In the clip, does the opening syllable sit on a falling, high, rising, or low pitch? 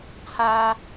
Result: high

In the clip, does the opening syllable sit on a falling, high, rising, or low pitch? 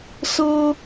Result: high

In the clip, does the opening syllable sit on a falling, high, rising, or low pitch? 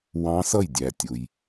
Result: rising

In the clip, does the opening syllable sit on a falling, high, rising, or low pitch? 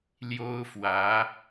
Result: high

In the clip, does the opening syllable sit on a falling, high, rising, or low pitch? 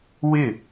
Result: falling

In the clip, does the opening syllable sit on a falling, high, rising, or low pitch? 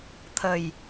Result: low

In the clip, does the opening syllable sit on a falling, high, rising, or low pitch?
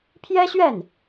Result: high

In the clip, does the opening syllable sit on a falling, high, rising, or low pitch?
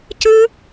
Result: high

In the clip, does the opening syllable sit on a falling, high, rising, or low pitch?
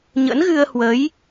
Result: rising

